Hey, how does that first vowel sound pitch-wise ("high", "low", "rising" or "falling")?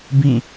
falling